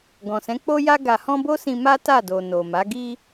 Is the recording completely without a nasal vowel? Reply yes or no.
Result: no